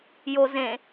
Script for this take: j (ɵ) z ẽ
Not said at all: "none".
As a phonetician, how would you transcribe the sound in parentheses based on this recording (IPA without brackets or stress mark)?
o